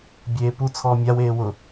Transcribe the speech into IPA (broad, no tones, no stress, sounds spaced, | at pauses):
bʲ eː p u t͡sʰ ɔː mʲ a w eː w ʊ